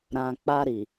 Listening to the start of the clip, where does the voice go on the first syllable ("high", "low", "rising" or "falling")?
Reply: low